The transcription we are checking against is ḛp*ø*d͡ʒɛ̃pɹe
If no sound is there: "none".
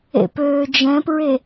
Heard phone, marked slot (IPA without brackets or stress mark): øː